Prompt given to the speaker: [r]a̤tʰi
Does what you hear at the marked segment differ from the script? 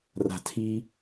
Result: no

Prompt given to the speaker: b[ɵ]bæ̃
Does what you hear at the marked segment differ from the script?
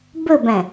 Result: no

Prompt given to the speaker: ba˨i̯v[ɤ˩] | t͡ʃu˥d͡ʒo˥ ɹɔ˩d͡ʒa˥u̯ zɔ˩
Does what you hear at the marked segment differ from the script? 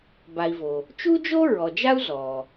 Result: yes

